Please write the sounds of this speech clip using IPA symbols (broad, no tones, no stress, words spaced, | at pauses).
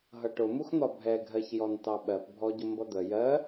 ɦʌʈʊmuxn̪ɒ bʱɛɡʱɜçjɔn tɑɓɜpbʱɔɟʊ mbʌd̪ə jɜ